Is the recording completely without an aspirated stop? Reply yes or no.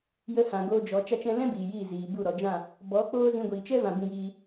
yes